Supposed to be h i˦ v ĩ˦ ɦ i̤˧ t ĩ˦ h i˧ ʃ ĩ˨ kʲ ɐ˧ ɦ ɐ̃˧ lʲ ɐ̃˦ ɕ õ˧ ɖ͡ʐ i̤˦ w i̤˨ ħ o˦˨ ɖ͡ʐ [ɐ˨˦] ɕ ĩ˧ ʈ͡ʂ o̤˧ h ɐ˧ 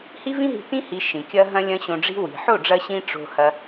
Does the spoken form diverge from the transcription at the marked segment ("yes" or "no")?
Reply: yes